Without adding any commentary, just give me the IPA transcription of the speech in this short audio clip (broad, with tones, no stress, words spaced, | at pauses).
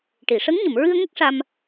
ʈi˨˩˨ ʂə˧˥ŋ ɲə˨˩˨mɹɨ˧ə̯ŋə˦˥k̚ ʂa˧m